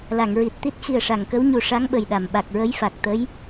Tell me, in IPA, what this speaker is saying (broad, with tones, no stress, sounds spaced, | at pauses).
l a˨˩˨ ŋ ɹ i˨˩ t̚ t̪ i˦˥ t̚ x i˨˩ ə̯ ʂ a˨˩˨ ŋ k ə˧˥ w ɲ u˧ ʂ a˧˥ ŋ ɓ ə˨˩ j ɗ a˨˩˨ m ɓ a˨˩ k̚ ɹ ə˧˥ j f a˨˩ k̚ t̪ ə˧˥ j